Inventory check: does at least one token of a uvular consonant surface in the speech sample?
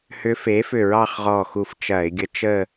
yes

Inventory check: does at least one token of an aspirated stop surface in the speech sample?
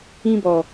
no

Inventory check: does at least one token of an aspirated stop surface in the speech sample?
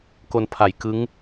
yes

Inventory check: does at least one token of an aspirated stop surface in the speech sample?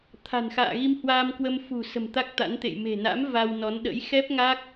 yes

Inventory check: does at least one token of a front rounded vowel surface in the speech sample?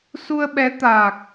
no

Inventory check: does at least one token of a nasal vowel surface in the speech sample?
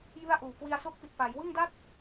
no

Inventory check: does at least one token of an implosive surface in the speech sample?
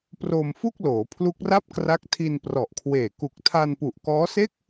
no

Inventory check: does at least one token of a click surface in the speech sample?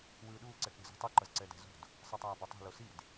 yes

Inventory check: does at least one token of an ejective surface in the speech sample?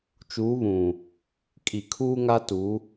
yes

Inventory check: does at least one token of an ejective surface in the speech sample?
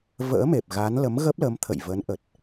no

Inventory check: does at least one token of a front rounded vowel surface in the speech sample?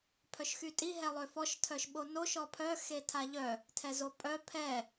yes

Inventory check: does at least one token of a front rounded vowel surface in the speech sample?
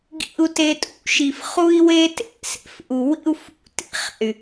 yes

